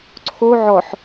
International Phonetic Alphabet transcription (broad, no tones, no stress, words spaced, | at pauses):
ǀʰo ʕɔħ